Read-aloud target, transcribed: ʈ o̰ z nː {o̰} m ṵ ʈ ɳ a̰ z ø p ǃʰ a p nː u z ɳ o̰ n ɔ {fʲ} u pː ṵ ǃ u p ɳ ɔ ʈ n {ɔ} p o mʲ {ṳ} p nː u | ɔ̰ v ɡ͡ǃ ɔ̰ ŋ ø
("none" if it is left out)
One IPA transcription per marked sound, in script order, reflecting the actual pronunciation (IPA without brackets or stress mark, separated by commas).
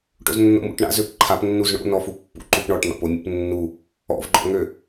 o̰, f, ɔ̰, ṵ